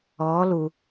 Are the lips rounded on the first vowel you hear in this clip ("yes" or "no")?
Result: yes